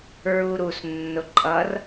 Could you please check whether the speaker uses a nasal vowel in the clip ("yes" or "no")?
no